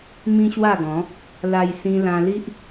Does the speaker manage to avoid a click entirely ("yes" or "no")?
yes